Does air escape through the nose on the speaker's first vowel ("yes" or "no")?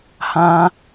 yes